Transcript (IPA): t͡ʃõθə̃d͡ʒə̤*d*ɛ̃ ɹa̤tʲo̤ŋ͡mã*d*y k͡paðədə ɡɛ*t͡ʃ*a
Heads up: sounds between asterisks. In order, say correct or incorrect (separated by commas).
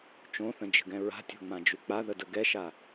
incorrect, incorrect, incorrect